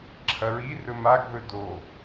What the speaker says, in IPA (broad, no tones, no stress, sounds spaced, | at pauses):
ǁʰ ɐ ɹ i r ɵ m a ɡ ð ɵ d o